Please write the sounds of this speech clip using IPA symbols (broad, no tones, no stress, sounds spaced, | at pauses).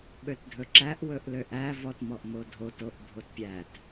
ɓ ø t dʱ ɵ ǁ æ ʔ w ɵ ʔ l ø ʔ æ v ɔ t m ɔ ʔ m o dʱ o t o ʔ bʱ o t pʲ æ t